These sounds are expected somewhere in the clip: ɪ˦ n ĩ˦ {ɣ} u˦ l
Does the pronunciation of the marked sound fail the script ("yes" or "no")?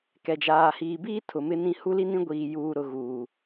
yes